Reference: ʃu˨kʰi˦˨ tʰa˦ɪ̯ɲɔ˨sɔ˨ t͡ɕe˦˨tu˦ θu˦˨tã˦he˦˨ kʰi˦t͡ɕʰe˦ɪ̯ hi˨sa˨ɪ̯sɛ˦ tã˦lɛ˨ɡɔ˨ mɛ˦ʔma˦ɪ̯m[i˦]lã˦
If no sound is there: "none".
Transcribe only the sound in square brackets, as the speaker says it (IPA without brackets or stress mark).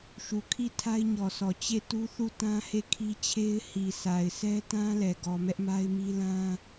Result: i˦